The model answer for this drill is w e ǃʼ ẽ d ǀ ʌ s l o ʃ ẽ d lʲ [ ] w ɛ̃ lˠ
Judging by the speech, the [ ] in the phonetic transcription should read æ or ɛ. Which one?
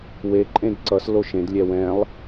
ɛ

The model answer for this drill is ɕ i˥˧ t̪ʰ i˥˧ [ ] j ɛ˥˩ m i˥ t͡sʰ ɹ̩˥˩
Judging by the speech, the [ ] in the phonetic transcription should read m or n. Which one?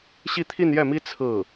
n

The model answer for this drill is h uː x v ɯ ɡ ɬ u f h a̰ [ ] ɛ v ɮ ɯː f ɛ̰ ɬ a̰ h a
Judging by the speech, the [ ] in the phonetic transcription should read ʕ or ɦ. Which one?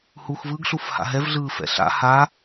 ɦ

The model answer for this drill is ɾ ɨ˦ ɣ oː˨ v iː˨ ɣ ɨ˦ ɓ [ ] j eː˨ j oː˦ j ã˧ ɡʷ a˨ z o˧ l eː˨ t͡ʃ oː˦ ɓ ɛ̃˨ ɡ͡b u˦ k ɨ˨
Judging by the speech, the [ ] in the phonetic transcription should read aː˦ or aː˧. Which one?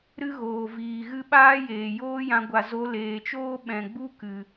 aː˦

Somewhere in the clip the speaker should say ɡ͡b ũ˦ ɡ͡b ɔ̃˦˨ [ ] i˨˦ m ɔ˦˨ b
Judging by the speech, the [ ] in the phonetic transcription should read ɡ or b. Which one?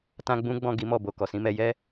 ɡ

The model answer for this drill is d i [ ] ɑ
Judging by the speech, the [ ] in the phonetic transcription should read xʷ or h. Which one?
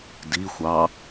xʷ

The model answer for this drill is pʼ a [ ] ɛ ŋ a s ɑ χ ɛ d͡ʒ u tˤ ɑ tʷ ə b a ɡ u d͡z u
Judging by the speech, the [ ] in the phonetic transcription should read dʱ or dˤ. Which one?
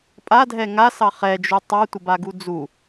dʱ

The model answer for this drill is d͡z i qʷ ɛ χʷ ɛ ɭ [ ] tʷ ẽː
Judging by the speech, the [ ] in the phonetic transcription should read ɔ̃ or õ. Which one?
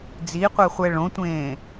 õ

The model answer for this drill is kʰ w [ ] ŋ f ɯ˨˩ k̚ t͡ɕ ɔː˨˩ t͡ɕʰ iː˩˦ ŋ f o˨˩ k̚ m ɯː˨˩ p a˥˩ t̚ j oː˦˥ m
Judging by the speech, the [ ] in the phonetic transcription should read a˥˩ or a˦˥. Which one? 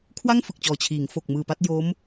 a˥˩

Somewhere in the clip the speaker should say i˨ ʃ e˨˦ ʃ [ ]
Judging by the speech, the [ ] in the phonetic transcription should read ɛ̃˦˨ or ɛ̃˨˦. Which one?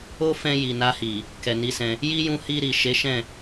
ɛ̃˦˨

